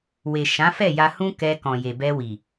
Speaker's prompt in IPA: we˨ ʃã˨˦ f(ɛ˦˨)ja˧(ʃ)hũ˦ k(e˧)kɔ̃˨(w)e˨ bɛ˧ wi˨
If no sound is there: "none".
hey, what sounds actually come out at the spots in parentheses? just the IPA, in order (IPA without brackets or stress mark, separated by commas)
ɛ˦˨, none, ɛ˧, j